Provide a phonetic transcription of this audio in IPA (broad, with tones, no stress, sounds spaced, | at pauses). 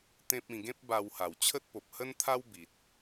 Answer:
t̪ ẽ˦ p̚ ĩ˧ ɡ ẽ˦ p̚ b a˧ w h a˨˩ w t͡ɕʰ ə˦ t̚ p o˨ p̚ h ə˦ n t̪ʰ a˦ w b i˨ t̚